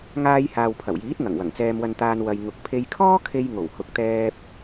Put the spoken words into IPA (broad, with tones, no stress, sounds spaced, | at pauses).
ŋ aː˧ j h aː˨ w pʰ ɐ˨˩ w j iː˨˥ t̚ ŋ ɐ˨˩ ŋ w ɐ˨˩ ŋ t͡s ɛː˧ m w ɐ˧ n t̪ aː˧ n w ɐ˨ j ŋ ʊ˨ k̚ pʰ e˧ j kʰ ɔː˥ kʰ e˧ j ŋ o˨˩ w h ʊ˨ k̚ t̪ ɛː˧ p̚